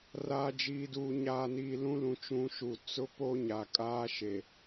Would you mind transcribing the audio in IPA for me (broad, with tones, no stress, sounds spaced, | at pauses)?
r aː˨ d͡ʒ iː˨ d uː˨ ɲ aː˨ n iː˨ l ũ˦ l ũ˨ t͡ʃ ũ˨˦ ʃ u˨ t͡s ʊ˦ p o˦ ɲ a˨ kʼ aː˦ ʃ e˨